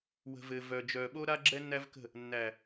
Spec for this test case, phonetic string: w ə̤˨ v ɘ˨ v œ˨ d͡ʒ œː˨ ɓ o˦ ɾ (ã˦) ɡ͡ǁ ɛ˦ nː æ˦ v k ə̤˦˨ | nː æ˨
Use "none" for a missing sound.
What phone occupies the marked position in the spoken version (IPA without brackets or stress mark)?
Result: a˦